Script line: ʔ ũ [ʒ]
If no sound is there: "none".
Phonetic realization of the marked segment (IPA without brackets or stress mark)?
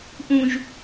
ʒ